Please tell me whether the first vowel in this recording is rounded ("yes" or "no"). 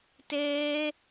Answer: no